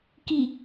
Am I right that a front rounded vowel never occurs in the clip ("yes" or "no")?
yes